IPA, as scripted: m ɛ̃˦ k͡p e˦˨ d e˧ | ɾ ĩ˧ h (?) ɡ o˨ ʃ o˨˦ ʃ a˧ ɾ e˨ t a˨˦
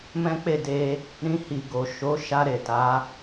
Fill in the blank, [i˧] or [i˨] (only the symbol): i˨